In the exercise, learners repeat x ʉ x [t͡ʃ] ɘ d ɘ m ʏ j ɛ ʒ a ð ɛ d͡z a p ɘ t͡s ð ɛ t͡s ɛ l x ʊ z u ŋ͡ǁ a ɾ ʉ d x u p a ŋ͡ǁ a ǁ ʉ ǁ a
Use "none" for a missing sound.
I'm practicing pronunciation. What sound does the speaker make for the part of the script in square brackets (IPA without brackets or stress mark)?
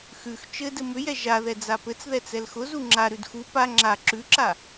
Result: t͡ʃ